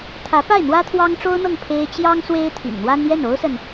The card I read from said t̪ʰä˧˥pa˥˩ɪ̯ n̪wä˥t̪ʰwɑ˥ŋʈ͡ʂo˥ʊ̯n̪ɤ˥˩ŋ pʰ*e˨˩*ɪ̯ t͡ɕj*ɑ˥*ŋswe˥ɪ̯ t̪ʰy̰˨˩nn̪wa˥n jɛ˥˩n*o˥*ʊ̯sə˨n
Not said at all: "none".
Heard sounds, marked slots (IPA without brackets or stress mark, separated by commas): e˥, ɑ˥, o˥